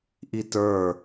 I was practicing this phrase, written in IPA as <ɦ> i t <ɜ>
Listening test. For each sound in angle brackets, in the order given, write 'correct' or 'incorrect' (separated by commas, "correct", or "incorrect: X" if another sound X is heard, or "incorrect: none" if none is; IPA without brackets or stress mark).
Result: incorrect: ʔ, incorrect: ə˞